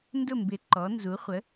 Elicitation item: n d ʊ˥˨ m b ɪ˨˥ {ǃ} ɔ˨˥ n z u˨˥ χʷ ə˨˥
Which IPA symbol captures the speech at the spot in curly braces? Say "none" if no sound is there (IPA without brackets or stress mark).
ǃ